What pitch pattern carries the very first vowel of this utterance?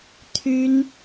high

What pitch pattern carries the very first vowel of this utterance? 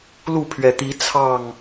falling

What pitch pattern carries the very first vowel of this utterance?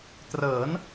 rising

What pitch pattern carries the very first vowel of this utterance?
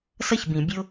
falling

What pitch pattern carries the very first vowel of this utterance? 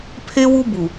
high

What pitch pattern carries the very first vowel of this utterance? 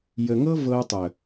low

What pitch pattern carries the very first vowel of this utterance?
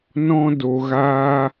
high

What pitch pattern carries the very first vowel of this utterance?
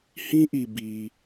high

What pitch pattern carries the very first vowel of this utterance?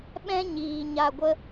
high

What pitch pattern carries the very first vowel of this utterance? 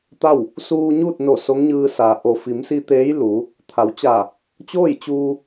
falling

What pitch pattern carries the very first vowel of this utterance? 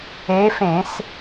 rising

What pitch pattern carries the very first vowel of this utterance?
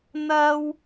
high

